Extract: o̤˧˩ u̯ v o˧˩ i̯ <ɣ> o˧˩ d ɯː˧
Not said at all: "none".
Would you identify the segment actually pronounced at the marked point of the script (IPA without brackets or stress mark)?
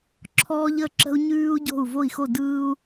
x